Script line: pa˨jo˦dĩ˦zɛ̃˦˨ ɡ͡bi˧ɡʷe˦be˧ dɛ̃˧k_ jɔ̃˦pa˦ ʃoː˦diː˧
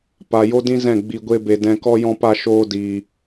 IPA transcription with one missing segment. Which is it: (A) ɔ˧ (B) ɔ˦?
B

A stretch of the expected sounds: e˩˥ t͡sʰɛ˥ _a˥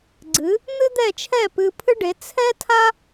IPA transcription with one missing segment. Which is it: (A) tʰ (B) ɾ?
A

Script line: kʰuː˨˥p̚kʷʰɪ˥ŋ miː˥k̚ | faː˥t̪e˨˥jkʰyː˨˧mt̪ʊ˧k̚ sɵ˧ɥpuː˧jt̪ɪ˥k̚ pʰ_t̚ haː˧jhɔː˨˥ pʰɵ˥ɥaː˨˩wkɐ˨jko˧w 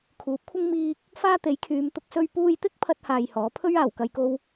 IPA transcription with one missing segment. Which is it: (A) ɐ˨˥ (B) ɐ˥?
B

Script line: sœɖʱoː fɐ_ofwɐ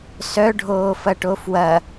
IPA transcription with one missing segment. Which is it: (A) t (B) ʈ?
B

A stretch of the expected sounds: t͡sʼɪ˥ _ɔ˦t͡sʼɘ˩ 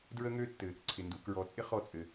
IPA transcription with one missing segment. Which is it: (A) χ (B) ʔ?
A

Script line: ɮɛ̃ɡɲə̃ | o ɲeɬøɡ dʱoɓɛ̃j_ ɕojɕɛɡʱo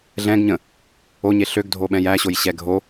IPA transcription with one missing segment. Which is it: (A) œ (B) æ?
B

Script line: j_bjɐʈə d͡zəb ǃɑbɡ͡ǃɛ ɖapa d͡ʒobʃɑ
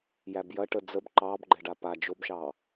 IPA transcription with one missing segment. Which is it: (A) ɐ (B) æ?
B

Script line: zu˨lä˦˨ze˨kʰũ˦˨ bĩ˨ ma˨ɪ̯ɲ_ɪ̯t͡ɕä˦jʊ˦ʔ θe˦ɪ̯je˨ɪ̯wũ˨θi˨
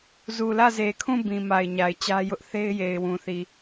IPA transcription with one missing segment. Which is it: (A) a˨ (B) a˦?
A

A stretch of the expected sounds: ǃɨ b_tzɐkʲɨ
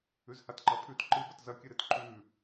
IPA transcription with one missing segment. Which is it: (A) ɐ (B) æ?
A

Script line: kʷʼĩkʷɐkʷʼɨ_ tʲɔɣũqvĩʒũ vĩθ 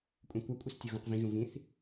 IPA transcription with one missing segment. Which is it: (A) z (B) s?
B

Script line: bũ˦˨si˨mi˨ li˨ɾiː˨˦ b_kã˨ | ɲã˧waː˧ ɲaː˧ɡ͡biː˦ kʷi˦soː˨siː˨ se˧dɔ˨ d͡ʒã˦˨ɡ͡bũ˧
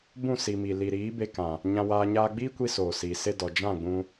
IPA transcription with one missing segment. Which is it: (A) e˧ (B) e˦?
A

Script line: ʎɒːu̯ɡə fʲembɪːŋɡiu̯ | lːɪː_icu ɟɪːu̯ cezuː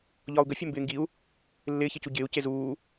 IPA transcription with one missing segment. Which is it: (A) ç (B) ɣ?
A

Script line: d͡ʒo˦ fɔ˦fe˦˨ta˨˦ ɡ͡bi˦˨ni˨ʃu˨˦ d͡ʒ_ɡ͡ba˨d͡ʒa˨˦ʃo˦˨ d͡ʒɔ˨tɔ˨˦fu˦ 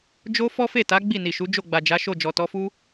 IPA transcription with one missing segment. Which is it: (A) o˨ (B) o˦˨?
B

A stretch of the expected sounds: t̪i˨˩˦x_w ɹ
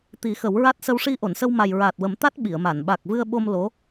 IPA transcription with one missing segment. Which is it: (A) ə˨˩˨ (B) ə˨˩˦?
B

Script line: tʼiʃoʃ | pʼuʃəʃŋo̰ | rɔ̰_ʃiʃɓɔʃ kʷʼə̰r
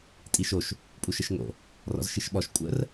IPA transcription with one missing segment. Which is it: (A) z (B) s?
A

